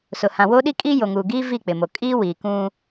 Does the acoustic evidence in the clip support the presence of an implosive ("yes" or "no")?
yes